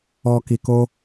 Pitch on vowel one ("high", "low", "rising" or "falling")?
low